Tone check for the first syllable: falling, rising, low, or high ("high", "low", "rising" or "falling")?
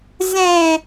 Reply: low